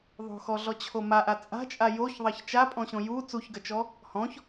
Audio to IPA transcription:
ðˤ o̤ x ɔ ɮ ɔ t͡ɕʰ o m a ʔ a t͡sʼ a̤ t͡ʃʼ a j o ç ðˤ ɐ ç t͡ʃ a pʼ ɔ̃ ɕ õ j u t͡s u ç ɡ ɐ t͡ʃ ɔ | h ɔ̃ ç

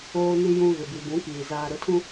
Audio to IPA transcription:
oː˨ n i˨ j ũ˨ ɣ ɪ˨ b i˨ b ũ˨˦ k iː˨ z aː˨ ɾ ʊ˨˦ tʰ ũ˦

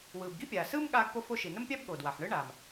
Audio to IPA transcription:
w ɯː˩ b ɡ i˥ pʲ aː˩ s ɯː˥ m ɠ aː˥ ɡ p o˥ f o˥ ʃ i˩ n ə˥ m pʲ a˥ b ɠ o˩ d w a˩ ħ ɳ ɯ˥ ɳ aː˩ m

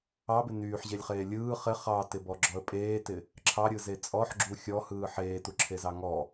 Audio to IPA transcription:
ɑ b ɪ n yː ħ ʑ e lʲ χ eː lʲ ɯː χ ɪ χ ɑ t ɪ b ɔ ɡ͡ǁ ɔ ə̯ pʼ eː t ɪ | ǁʰ ɑ ɾʲ ɯ z e t͡sʼ ɔ ħ ɡ͡ǁ u xʲ ɔ h ɯː ħ eː t u ǁʰ e z ɑ ŋ ɔ

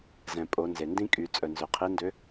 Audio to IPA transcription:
z ɛ̃˩ pʼ o˩˧ n z e˩ n d ĩ˥ kʼ y˩˧ t͡sʼ œ˩ n z ø˩ qʰ i˧˥ n d ø˧˥

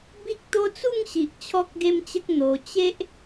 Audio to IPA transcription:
b i˦ k̚ t̪ o˦ t͡s u˥˧ ŋ ɕ i˨ ʔ t͡ɕʰ ɔ˦ k̚ ɡ e˦ m t͡ɕ ə˦ k̚ n̪ o˧ t͡ɕ e˦ ʔ

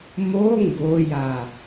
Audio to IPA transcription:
m o ŋ ɡ o j a

